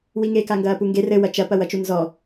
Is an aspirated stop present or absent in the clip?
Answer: absent